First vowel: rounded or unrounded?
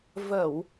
unrounded